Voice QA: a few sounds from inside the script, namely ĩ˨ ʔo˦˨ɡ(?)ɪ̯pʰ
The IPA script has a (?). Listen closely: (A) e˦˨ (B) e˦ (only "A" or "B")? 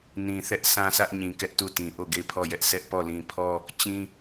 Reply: A